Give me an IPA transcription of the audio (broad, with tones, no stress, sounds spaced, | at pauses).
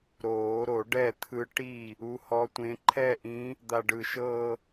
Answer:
ɾ oː˨˩˦ ɾ o˨˩˦ ɖ ɛ˥˩ t̪ʰ ɯ˧˥ ʈ i˥˩ | u˧˥ h ɔ˧˥ tʷ ẽ˧˥ ǃʰ ɛ˥˧ ʔ ĩ˧˥ | d̪ a˧ ɖ ɯ˧˩ ʃ ɤ˥˧